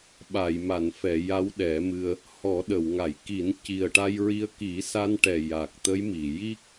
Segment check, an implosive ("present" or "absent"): present